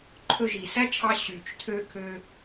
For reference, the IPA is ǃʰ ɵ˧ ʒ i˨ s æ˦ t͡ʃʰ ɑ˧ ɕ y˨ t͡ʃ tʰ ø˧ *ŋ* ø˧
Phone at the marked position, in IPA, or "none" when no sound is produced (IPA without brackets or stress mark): kʰ